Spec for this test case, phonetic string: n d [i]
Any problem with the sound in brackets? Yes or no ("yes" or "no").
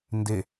yes